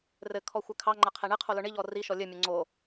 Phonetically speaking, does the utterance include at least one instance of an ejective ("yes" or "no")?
no